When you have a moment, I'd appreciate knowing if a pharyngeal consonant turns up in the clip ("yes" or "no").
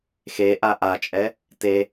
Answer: no